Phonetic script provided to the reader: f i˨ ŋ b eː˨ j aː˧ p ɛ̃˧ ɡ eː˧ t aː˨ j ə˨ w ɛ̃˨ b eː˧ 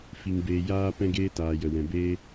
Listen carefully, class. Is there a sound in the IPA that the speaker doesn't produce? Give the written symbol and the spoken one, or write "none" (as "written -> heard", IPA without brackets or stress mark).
none